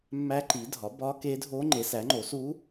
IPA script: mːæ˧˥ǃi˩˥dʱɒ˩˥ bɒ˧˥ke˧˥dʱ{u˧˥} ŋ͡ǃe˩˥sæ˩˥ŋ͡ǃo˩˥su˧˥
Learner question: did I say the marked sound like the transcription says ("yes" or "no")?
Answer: no